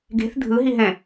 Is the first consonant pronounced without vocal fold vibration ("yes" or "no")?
no